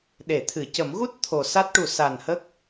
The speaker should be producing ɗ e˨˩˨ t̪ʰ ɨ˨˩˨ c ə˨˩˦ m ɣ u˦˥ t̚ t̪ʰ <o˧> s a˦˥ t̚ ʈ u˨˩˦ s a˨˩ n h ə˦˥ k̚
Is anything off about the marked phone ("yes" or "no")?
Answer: yes